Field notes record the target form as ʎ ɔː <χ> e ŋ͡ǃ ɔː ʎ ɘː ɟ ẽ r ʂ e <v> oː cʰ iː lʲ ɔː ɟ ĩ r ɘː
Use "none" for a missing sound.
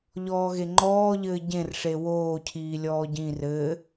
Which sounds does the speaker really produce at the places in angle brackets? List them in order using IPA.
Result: ɣ, w

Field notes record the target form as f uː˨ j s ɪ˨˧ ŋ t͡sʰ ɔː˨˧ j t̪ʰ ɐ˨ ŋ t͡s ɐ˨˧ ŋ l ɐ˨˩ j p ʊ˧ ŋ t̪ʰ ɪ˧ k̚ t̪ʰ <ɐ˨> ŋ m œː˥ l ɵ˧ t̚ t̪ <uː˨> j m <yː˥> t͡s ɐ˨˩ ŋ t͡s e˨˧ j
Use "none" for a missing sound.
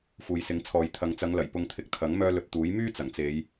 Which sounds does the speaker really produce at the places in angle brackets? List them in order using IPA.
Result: ɐ˨˥, uː˨˥, yː˥

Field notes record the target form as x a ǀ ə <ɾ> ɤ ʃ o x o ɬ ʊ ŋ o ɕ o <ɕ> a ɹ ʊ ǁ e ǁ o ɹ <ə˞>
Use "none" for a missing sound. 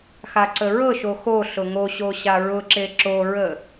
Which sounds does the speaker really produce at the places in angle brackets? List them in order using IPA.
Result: ɹ, ɕ, ə

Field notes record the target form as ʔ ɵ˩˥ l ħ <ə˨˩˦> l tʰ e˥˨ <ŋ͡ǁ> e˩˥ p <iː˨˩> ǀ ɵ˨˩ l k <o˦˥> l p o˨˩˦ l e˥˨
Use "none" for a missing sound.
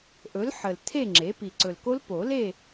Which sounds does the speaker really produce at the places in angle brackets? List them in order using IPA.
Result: ə˨˩, ŋ͡ǁ, i˨˩, o˦˥

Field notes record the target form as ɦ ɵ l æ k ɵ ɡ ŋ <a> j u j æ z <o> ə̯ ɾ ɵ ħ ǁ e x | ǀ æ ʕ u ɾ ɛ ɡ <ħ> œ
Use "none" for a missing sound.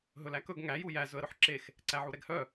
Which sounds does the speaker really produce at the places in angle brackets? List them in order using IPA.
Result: æ, ɵ, h

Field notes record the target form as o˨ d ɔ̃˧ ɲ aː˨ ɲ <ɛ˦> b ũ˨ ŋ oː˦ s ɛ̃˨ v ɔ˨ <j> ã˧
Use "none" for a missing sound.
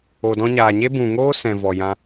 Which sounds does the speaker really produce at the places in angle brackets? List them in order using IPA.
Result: e˦, j

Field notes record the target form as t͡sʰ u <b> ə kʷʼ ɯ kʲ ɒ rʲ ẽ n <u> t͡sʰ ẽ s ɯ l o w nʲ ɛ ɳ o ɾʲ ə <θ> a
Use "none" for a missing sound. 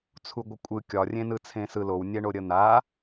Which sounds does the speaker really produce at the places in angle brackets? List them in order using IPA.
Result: ɡʷ, ɯ, n̪

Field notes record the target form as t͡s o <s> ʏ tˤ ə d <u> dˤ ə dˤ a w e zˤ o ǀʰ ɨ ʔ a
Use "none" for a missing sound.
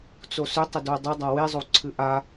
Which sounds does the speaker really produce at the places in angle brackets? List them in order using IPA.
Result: s, o

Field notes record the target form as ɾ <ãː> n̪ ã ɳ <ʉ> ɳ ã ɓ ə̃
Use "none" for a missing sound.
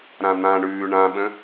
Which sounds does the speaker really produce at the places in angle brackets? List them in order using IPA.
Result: ã, ʉː

